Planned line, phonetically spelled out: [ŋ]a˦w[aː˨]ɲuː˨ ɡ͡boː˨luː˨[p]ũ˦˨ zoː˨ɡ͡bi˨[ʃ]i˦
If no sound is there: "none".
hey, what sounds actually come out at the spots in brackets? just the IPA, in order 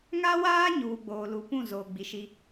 ŋ, aː˦, p, ʃ

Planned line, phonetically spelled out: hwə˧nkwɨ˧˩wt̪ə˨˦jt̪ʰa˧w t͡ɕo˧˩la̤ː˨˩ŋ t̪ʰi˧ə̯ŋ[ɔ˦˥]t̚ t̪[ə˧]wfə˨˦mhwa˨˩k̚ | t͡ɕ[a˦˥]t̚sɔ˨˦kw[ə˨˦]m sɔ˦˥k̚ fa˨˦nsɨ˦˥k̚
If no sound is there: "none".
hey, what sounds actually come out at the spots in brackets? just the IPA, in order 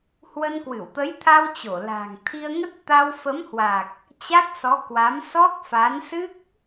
ə˦˥, a˧, a˦˥, a˨˦

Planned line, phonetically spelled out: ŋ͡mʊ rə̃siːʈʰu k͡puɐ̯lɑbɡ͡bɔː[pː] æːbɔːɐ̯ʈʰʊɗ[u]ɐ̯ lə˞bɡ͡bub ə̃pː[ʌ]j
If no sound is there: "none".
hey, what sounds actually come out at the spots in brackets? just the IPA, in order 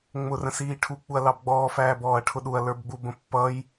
f, u, ʌ

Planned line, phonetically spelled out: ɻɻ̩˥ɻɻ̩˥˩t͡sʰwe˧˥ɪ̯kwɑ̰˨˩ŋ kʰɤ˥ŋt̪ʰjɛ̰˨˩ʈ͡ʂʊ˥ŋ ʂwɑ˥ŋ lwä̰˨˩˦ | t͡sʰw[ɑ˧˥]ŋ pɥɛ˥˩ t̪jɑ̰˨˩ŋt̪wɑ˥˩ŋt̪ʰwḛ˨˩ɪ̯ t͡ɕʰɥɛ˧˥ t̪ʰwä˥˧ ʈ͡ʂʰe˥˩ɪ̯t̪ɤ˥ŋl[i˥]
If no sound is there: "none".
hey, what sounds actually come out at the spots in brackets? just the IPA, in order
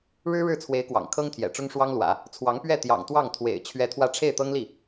ɑ˧˥, i˥˩

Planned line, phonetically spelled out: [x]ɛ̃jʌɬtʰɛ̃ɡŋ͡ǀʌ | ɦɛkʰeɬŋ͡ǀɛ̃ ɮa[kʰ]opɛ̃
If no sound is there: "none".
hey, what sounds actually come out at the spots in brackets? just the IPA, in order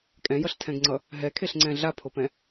kʼ, pʰ

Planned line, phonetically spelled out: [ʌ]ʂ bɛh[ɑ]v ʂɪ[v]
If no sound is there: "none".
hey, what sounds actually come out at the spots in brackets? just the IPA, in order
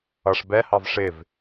ʌ, ɑ, v

